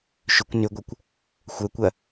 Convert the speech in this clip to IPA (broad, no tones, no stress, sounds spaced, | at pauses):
ʃ ʏ kʷ n ʏ ɡʷ ɐ kʷ | xʷ œ kʷ ɐ